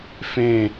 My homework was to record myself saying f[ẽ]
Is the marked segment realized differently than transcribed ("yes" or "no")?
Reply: no